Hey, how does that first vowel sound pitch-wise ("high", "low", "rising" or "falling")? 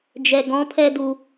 low